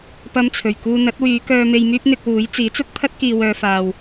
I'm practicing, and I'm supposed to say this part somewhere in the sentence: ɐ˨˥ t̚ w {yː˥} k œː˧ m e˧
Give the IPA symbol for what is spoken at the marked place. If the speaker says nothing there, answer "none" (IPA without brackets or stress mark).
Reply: yː˨˧